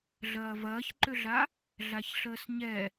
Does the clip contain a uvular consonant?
no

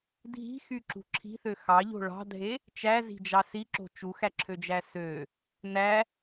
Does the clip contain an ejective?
no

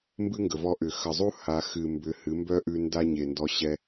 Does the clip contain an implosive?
no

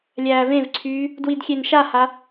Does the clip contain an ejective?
no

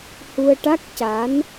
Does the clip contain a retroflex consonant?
yes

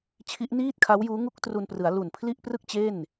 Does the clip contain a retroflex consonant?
no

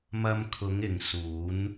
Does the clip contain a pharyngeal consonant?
no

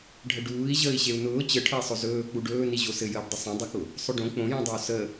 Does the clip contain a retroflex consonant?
yes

